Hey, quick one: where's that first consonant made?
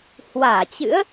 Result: throat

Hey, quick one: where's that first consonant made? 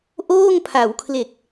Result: throat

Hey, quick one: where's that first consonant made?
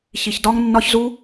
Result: palate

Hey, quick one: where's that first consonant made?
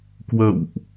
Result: velum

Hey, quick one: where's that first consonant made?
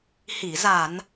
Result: throat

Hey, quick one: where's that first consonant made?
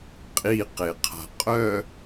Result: uvula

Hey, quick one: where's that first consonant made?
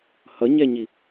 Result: throat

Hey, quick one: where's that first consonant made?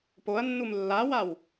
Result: lips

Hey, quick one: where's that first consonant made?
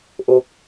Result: throat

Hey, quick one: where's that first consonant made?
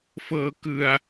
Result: lips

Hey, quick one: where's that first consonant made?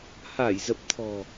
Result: throat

